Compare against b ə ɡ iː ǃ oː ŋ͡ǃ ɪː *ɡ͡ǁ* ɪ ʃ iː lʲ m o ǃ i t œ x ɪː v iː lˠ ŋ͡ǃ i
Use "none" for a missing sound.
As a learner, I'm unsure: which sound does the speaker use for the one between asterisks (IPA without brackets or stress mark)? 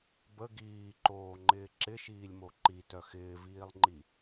ǁ